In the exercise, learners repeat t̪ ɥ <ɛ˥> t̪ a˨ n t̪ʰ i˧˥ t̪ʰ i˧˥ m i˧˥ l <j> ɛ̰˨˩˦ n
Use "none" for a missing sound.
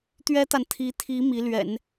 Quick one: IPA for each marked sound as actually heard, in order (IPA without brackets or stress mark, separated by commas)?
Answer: ɛ˥, ɥ